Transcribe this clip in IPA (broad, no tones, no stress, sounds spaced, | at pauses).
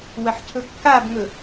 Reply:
w ɐ ħ cʰ ɵ kː a b ŋ ɵ